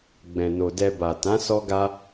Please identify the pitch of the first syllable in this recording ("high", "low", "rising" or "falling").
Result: low